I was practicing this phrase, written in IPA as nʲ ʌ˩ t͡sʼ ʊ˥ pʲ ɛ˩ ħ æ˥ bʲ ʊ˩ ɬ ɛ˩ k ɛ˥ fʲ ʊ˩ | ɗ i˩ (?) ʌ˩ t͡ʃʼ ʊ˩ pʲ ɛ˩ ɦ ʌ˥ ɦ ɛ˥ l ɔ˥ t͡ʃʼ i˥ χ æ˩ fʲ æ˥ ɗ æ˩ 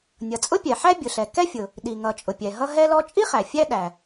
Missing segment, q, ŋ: ŋ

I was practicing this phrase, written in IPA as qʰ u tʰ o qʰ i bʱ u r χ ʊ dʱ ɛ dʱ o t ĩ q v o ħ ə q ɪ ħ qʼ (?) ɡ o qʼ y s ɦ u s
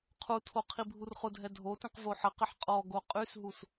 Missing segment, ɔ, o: ɔ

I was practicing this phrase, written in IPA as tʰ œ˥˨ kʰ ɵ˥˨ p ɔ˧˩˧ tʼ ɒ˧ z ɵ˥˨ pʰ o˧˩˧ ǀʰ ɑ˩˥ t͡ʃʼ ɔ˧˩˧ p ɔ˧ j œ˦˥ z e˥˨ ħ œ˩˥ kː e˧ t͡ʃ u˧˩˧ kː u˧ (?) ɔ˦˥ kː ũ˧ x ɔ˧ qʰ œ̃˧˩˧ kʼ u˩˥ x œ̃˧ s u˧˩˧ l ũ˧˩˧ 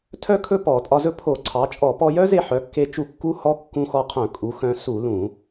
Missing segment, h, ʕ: h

